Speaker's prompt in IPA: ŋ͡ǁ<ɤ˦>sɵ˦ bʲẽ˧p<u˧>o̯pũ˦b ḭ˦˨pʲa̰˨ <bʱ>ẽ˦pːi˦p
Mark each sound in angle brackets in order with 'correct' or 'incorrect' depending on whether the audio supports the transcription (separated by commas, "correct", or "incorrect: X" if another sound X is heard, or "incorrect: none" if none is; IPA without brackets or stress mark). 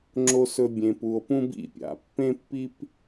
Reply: incorrect: o˦, correct, incorrect: pː